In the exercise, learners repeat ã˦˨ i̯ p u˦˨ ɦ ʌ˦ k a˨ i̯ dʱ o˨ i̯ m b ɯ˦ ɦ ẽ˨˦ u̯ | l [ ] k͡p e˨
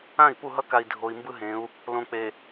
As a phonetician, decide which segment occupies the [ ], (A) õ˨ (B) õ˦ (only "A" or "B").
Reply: A